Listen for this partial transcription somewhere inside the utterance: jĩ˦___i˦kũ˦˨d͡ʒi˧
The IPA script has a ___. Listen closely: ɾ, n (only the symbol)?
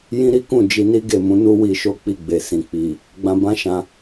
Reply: ɾ